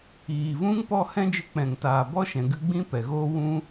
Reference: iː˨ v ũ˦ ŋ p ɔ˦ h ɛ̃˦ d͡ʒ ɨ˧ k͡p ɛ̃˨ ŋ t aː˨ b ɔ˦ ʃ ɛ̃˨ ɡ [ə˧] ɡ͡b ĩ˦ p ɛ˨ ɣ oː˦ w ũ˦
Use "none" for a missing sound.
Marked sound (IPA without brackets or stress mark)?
ɨ˧